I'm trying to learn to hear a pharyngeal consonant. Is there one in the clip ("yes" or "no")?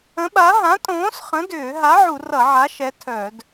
yes